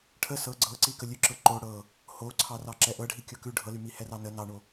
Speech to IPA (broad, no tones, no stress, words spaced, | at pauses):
ʈʰə sɤ ɡ͡ǀɤǀikə lʲʉ ǁɤǃo ɽɤ | hoǀʰɑrɑ ǁɛʔɤɖʱi kʲɤkʉ ɖʱɤlymi hɛrɑnə nɑɳo